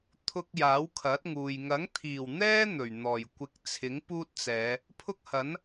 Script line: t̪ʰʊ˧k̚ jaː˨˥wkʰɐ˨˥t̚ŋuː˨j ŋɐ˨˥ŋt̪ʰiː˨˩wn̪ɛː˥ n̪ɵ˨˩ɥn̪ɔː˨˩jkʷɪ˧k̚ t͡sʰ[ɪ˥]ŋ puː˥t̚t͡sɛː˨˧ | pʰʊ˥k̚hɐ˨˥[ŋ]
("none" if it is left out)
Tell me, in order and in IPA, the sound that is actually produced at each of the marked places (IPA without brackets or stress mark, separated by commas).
ɪ˨˥, n